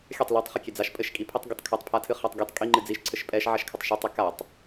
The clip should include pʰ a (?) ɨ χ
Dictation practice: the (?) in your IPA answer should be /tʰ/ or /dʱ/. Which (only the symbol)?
tʰ